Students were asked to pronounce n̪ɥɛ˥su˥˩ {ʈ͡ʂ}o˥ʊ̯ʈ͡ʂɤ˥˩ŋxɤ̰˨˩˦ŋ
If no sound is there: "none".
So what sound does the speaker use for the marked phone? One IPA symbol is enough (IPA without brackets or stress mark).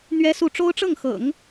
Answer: ʈ͡ʂ